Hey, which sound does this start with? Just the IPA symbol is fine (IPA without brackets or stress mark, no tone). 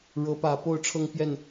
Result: ɻ